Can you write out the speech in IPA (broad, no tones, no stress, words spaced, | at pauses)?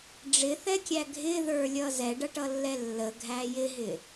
ɖ͡ʐɪθɛkʲæ ɡʱɪðə˞lʲʌ zɛɖʌʈʌlːɛ lːəɡʱæ jɪɦɪ